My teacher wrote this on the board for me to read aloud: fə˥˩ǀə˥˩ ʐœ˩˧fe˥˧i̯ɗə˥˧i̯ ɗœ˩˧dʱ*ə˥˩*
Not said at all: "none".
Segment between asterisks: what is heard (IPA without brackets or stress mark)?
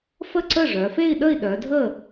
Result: ə˥˩